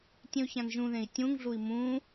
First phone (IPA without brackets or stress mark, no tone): tʲ